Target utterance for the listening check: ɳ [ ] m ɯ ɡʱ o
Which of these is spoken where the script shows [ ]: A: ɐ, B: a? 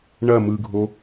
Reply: A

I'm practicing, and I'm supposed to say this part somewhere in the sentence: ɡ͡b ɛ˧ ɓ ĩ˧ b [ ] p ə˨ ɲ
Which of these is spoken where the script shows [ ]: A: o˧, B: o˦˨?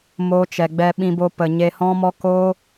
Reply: A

